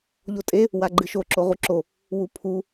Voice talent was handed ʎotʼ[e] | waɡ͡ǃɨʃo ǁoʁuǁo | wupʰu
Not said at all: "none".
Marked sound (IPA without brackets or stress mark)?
e